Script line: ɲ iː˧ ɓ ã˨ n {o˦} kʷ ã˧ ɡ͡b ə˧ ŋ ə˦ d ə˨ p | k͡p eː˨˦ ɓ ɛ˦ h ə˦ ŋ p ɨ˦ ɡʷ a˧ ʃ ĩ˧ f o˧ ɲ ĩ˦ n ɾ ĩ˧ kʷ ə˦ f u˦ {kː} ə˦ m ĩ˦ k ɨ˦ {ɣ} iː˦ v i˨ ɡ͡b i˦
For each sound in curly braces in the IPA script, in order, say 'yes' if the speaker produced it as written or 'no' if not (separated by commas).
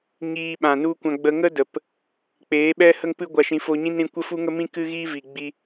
no, no, yes